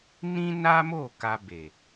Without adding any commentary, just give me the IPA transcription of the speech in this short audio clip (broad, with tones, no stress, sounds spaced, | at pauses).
n ĩ˦ n a˦ m o˦˨ k a˧ b e˨